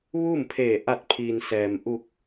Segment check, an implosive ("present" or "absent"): absent